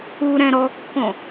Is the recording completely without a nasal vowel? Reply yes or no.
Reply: no